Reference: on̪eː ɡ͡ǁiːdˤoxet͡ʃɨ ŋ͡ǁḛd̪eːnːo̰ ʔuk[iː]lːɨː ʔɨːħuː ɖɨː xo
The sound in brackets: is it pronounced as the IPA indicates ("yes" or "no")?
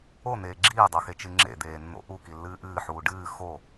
no